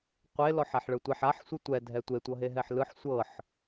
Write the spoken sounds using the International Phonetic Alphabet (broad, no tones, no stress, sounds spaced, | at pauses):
qʷ e l ɔ ħ a ħ ɭ ɯ tʷ a ħ a ħ sʷ ɯ tʷ ɛ dʱ ɛ tʷ e tʷ ɤ ɦ e ɦ ɛ ħ l ɯ ħ sʷ ɤ ħ